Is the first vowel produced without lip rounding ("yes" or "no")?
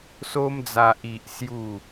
no